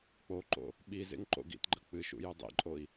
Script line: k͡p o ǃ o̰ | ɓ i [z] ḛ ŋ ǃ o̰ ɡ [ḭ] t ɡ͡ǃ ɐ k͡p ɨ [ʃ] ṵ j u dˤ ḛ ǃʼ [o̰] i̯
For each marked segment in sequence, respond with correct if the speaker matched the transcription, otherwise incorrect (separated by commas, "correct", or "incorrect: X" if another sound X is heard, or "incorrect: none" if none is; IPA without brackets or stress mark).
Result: correct, correct, correct, incorrect: o